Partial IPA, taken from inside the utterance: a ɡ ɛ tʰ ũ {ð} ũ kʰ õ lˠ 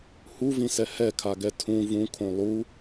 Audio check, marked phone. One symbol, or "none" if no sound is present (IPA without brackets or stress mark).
v